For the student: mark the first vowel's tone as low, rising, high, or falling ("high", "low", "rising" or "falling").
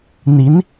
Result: rising